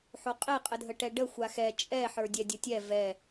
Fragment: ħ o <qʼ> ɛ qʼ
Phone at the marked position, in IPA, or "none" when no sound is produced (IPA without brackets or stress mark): qʼ